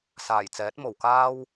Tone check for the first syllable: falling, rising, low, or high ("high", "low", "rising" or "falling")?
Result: low